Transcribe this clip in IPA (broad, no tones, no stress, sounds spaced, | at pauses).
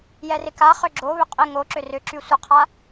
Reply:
j ɛ r ɪ k a χ ʏ ɡ͡ǁ o β ʏ qʼ ɪ ŋ o ǁ ʏ r ʏ ǁ y sʷ ə qʰ a